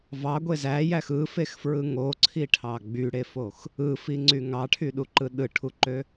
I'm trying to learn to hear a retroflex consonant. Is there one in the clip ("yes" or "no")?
yes